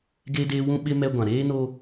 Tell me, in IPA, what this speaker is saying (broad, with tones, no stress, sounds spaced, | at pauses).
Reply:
ɡ eː˦ d eː˦ w ũ˦ ɓ ɪ˦ m ɛ˦ ɡʷ ã˨ ɾ eː˦ n oː˦